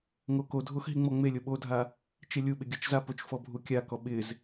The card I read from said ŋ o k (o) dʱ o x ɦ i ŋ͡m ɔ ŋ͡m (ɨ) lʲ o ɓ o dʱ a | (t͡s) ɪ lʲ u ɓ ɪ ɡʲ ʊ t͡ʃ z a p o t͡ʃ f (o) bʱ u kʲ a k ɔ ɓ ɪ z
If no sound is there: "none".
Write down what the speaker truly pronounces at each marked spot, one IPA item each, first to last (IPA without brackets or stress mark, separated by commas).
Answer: o, e, t͡ʃ, ɔ